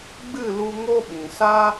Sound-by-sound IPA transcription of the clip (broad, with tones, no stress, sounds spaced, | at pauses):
ɡ͡b ɨ˦˨ l u˧ ŋ o˦ ɓ ĩ˨ s a˦